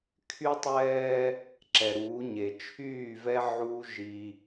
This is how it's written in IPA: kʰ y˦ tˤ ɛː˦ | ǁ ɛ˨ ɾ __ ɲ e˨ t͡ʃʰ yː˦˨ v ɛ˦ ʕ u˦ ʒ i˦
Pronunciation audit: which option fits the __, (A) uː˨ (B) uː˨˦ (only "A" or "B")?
B